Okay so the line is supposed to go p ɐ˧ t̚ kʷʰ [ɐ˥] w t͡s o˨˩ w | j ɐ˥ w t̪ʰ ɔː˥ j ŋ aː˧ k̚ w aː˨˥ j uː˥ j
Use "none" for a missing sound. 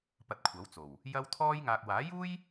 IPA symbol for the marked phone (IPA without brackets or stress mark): ɐ˨˥